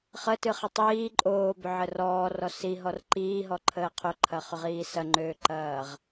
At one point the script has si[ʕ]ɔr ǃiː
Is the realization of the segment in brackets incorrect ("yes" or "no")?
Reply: yes